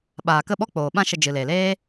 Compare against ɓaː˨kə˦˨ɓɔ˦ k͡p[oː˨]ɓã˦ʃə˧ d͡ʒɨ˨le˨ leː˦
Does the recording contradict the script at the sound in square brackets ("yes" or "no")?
no